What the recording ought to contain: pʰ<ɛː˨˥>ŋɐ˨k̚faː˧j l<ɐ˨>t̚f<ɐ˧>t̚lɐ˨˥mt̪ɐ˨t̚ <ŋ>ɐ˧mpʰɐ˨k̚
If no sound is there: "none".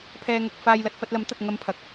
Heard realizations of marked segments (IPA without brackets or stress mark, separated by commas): ɛː˧, ɐ˨, ɐ˧, ŋ